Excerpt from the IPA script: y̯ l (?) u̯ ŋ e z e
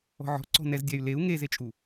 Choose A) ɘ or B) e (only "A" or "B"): B